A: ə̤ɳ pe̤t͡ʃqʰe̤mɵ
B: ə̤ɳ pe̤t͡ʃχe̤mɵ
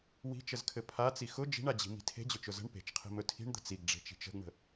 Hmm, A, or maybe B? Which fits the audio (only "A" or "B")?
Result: A